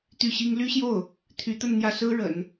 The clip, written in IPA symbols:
t̪y˥˩ɕi˥ŋ ly˥ɕjo˥˩ʊ̯ | t̪ʰy˧˥t̪ə˥˧nn̪jä˥˩sɹ̩˥ ɻə̰˨˩˦n

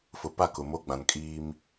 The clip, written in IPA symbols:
fʊ˨pa˦˨ kʊ˨mo˦ɡ͡bã˨n kʼiː˦m

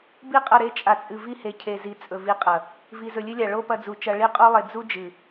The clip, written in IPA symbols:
bi˦˨qʼɐ˦˨ ɾe˧t͡ʃʼa˨t͡sʼɨ˨ vi˧he˨cʰe˨zi˨ t͡sʼɵ˨vi˨˦qʼɐ˨ | vi˨zɵ˨lʲɨ˦lʲa˨ ɭo˦pɐ˧d͡zu˨t͡ʃɐ˧ ɭi˧qʼu˧lˠe˨ d͡zu˦d͡ʒɨ˨

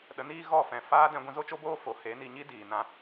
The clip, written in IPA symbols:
ɗə˨˦niː˦ ɣɔ˦˨fɛ̃˨ faː˦dɛ̃˧ ɡʷĩ˧zo˦t͡ʃo˦boː˦ fo˨˦ he˨˦ni˧ɲi˦ diː˨ nã˧

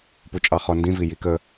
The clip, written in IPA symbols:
put͡ʃʼɑχɔndĩ vijikə

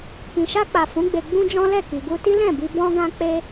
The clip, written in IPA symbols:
kĩ˨ʃa˧k͡pa˨ fũ˨˦ ɡ͡be˧ ɡ͡bũ˦d͡ʒɔ̃˦lɛ˦˨ ki˨ɡu˧ti˦ lɛ̃˦˨bi˧ bɔ̃˦ ɡã˦k͡pe˦

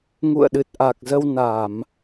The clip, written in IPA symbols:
ŋṵ˧˨ə̯ɗɨ˨˩t̚ʔa˨˩k̚zə˧w na˧˩˨m

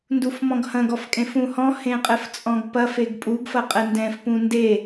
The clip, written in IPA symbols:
ndufmɔ̃ɡhɐ̃ɡ ɔfkʼẽfũhɔ̃ hẽqʼɘft͡sʼɔ̃ɡpɐf eɡpʼuɡ fɐqʼɛndɛ̃f pũnde

